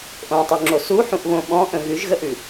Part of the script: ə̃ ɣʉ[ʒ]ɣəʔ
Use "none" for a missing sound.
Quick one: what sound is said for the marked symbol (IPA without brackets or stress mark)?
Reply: ʒ